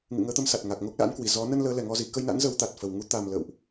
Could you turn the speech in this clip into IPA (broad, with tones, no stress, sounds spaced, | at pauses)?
ŋ ɨ̰˧˨ ŋ əː˨˦ t̪ ə˨˦ m s a˨˩ t̚ ŋ a˨˩ k̚ ŋ o˦˥ k̚ l a̰˧˥ n k w i˨˩ z ɔ˨˦ n ə˧ n l əː˨˦ l ɛ˨˩ ŋ ɔ˧ z i˨˩ k ə˧ j n a̰˧˥ n z ə˨˦ w t̪ a˨˩ t̚ f ə˨˩ w ŋ u˨˦ t̪ a˨˩ m l ə̰ː˧˨ w ʔ